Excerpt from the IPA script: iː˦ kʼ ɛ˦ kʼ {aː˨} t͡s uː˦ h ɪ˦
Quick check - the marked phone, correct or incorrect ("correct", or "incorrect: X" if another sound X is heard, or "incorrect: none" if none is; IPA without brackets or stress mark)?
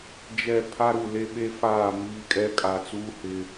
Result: incorrect: a˨